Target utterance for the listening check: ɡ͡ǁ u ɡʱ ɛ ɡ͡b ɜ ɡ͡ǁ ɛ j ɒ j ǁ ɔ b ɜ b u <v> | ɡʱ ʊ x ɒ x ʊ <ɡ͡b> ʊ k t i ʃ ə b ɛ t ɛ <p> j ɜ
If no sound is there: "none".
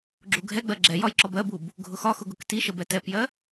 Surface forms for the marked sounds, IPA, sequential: b, ɡ, p

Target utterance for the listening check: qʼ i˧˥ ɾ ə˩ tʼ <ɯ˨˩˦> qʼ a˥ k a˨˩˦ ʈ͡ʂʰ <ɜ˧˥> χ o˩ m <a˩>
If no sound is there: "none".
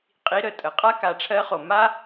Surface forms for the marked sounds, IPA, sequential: ə˨˩˦, ɜ˧˥, a˥

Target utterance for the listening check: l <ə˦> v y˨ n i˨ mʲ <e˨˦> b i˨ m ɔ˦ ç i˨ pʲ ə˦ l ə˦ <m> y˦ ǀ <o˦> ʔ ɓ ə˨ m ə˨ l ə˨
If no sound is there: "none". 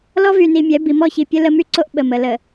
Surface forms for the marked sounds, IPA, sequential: ɔ˦, ɛ˨˦, m, o˦

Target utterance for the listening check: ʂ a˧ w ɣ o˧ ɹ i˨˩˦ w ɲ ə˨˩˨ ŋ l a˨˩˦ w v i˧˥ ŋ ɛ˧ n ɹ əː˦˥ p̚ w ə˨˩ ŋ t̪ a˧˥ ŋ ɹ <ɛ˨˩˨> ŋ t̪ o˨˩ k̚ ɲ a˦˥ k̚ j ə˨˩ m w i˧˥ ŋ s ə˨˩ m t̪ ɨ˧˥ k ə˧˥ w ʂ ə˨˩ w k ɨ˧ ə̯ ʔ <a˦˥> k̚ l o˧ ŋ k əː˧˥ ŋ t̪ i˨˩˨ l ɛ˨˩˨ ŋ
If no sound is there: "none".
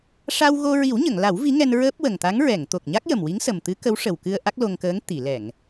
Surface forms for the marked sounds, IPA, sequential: ɛ˨˩˨, a˦˥

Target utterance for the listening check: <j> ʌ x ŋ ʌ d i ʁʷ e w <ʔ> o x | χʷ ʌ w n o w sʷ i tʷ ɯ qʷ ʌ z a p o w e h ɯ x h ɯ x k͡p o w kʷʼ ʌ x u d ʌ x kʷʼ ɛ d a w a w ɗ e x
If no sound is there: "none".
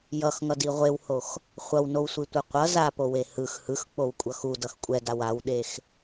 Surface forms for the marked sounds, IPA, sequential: j, h

